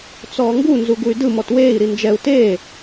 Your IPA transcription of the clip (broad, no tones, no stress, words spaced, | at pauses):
t͡sɔːŋɡu nzuɡuy̯dɯ mɔtweːi̯ ɾind͡ʒɛu̯ teː